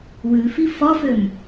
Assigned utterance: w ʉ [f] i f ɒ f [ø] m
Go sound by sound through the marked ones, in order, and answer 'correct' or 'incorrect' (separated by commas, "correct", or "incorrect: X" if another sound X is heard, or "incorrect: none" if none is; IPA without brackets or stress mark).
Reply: correct, correct